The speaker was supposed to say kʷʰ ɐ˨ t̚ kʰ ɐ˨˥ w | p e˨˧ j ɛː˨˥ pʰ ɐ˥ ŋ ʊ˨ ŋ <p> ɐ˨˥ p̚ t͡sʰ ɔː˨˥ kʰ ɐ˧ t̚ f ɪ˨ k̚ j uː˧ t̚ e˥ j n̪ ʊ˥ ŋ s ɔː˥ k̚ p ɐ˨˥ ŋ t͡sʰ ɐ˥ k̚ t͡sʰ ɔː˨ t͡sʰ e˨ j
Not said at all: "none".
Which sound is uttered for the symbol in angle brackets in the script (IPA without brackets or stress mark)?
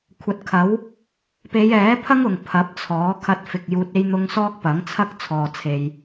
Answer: pʰ